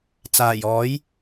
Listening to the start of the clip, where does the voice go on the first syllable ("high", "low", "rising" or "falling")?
low